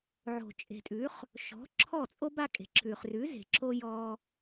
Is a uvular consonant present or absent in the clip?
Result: present